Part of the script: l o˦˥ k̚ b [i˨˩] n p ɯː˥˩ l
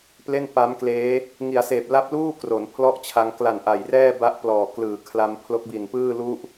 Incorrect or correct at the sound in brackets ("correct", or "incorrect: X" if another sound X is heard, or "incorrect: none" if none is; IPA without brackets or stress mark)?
correct